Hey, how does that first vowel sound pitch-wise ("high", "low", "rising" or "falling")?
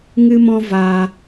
high